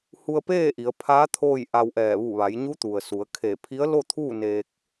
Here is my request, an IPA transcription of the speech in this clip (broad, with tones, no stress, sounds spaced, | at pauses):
h u˧ ə̯ p eː˥˨ ʔ i˩˧ ə̯ pʰ aː˧˥ t̪ʰ oː˥˨ j ʔ a˧ w ʔ ɛː˧˩ ʋ u˧˩ ʋ a˩˧ j ɲ u˧˥ t̪ u˩ ə̯ s u˩˧ ə̯ kʰ e˧˩ pʰ i˧˥ ə̯ l o˥˨ t̪ʰ uː˥˨ n eː˧ k̚